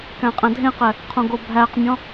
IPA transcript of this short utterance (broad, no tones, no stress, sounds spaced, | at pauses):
k æ̃ qʼ æ̃ dʱ ẽ q ɛ | qʰ õ ɡ o bʱ æ q mʲ ɔ̃